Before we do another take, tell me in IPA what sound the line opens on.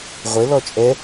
ʁʷ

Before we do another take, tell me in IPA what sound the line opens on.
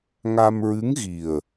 ŋ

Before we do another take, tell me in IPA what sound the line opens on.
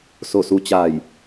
s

